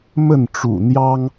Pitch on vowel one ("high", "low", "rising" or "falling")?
falling